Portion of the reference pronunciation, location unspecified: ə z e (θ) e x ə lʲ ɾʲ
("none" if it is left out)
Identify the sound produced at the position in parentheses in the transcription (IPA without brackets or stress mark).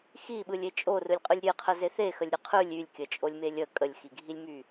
θ